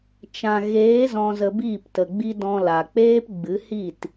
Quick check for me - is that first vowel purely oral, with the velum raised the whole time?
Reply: no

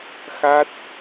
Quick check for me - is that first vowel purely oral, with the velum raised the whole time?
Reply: yes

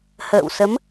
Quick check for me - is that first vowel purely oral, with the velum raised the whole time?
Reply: yes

